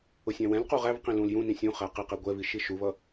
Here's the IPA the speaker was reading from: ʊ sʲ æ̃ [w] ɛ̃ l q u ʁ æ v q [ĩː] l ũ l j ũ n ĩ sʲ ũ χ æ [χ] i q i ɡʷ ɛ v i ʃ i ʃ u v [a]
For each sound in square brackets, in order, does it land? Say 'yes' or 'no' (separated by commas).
yes, no, no, no